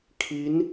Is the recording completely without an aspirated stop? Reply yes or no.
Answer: no